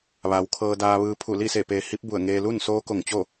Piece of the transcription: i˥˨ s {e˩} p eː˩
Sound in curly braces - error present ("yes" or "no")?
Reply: yes